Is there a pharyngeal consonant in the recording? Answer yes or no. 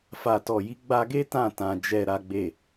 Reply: no